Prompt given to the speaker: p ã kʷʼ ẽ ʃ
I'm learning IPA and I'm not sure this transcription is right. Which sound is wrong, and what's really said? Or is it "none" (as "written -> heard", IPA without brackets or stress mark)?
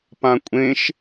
none